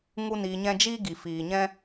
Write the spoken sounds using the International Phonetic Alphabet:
ŋu˦niː˧ɲɛ̃˦ d͡ʒiː˦ɡi˨fiː˨ ɲɛ̃˦

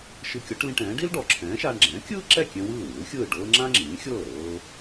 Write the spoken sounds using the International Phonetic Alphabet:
ʃɯ˧kʲɔ˩˥ʈlĩ˧ʈɛ̃ː˩˥ ɖi˥lɖɔ˩ǁʰɛ̃ː˩˥ʃaː˧ɳ ɡ͡ǁɛ̃ː˩˥kʲɯː˥ǁɛ˥˩kʲɛ̃˧ wɯː˥˩wɯː˩˥lxʲɯː˥˩ɖɤː˥ ŋ͡ǁã˥ŋ͡ǁĩː˩˥xʲɤː˥˩ ɾɤː˧

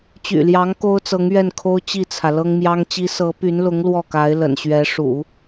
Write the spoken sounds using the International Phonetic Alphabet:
t͡ɕy̰˨˩ljɑ˧˥ŋ ko˥ʊ̯t͡sɤ˧˥ŋ ɥɛ˥˩nkʰo˥ʊ̯ t͡ɕi˥˩t͡sʰä˩ lɤ˥ŋmjɑ˥ŋt͡ɕi˥ sɤ˧˥py˧˥nlʊ˧˥ŋ lwɔ˥˩ka˧˥ɪ̯ lə̰˨˩nɕɥɛ˧˥ ʂṵ˨˩˦

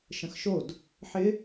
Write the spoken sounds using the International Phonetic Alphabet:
ʃə̃xʃod | ħɪ

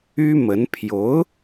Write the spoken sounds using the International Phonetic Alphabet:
y˥mə˧˥n pʰjo˧˥ʊ̯

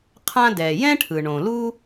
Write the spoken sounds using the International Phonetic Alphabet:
qʰã˥ dɛː˩jɛ̃˥ ʈʰɯ˩ɳõ˩lu˥

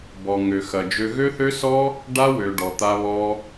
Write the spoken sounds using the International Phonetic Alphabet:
bɔ˨ŋø˨xɐ˨d͡ʒø˧ ɣø˦θø˦sɔ˦ | ɖa˦ wø˧ɖɔ˧t̪a˦βɔ˦

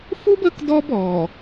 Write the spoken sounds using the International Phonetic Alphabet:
fu˦b ə˦k dɔ˦bɔ˨

